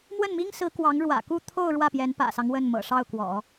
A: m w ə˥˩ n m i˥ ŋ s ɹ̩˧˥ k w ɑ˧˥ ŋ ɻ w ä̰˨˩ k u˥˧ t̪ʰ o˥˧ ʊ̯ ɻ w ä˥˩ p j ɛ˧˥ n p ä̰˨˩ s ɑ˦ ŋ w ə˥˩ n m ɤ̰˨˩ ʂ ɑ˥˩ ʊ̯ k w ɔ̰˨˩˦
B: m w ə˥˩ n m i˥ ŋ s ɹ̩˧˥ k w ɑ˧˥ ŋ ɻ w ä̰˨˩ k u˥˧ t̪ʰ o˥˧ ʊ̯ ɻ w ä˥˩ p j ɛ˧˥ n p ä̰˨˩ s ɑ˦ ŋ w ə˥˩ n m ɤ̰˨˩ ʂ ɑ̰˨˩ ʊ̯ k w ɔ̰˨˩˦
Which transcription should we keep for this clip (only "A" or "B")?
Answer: A